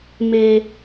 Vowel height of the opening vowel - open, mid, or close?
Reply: mid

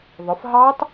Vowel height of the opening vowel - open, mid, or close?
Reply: close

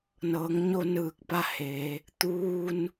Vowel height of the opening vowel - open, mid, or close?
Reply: mid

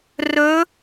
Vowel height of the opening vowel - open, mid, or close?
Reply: mid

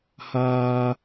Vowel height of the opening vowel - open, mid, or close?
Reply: open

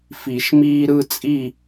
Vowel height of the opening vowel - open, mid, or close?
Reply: close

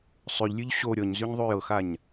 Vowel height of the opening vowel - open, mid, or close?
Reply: close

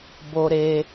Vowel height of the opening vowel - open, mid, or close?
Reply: mid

